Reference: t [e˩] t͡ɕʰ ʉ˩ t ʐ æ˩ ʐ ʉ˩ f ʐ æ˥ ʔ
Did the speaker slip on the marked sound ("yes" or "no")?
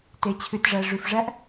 no